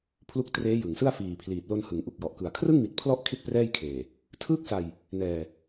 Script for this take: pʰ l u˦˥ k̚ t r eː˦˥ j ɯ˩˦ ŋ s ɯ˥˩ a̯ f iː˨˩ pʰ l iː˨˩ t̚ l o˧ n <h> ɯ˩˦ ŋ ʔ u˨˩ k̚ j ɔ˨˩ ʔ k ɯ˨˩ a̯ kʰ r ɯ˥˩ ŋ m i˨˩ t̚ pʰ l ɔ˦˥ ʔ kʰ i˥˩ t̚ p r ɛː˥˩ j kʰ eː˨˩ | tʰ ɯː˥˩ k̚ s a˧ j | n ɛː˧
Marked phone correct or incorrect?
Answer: correct